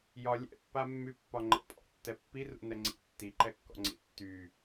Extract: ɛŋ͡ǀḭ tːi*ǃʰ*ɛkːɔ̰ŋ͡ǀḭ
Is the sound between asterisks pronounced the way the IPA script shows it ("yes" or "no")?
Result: no